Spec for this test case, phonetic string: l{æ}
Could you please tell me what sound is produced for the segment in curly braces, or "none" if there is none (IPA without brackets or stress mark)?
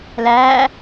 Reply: æ